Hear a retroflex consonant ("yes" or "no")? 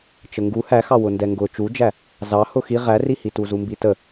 no